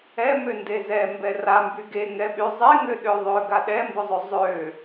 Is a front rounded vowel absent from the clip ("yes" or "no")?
no